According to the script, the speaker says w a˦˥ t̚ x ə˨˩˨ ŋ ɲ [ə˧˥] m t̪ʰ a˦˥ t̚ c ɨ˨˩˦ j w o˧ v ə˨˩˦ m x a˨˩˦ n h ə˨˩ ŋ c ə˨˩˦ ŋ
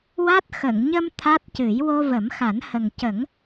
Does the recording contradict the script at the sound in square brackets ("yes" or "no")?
yes